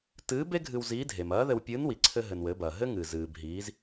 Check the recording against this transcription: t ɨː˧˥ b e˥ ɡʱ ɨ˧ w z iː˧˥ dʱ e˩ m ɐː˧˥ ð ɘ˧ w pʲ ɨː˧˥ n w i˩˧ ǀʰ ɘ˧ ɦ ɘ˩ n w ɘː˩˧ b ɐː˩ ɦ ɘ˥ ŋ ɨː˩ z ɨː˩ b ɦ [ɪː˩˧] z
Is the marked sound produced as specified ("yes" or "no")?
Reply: no